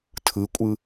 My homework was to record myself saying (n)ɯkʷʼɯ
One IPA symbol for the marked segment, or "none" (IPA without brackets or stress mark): tʰ